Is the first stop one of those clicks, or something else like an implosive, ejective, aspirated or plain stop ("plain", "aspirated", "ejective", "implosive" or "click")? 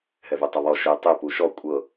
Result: plain